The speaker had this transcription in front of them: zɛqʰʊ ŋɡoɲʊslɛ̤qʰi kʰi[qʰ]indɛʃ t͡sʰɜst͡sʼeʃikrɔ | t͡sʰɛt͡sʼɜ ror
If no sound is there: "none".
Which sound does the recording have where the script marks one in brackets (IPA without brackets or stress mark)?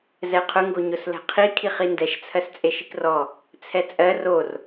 χ